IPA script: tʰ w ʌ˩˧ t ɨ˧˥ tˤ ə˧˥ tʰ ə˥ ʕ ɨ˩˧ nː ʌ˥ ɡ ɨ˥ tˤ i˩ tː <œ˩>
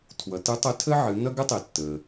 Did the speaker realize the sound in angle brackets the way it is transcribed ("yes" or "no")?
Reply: no